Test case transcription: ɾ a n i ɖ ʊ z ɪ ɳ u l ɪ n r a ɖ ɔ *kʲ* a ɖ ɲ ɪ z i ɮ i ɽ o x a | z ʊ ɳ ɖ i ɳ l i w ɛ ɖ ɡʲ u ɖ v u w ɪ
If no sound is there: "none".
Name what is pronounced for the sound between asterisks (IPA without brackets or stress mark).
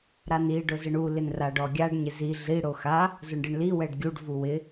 ɡʲ